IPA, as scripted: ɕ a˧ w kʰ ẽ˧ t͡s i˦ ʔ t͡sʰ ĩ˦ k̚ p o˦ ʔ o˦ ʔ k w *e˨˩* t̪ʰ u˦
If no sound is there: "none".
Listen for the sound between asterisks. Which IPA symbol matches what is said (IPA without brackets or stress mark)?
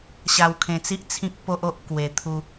e˧